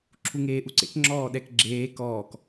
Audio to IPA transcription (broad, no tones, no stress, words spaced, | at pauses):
ǁʰuŋeːʔuǀḛk ŋ͡ǁɔːɗɛkɡ͡ǁeː kɔːk